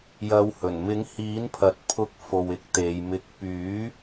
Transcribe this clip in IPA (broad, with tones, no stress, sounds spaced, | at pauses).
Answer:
j ɐ˨˧ w h ɵ˨˩ n m ɪ˨˥ ŋ h iː˨˥ n pʰ ɐ˨ t̚ pʰ ʊ˧ k̚ f o˧ w ɪ˧ k̚ t̪ e˨˧ j m ɪ˧ k̚ p yː˨˥